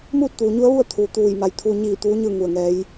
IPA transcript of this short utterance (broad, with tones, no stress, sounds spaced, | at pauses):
m uː˥˨ t̚ t̪ uː˩ ɲ u˧˥ ə̯ ʋ u˥˨ ə̯ t̪ʰ uː˩ t̪ uː˧˩ j m a˧˩ j t̪ʰ uː˧ ɲ iː˧˩ t̪ uː˧˥ ɲ ɯː˥˨ ŋ u˧˩ ə̯ ŋ ɛː˧˥ j